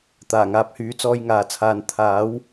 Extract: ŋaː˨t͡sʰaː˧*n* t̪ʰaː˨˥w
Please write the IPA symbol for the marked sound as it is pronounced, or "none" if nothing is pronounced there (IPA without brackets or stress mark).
n